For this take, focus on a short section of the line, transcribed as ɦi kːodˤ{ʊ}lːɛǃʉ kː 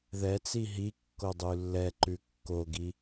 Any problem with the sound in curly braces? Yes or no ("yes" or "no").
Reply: yes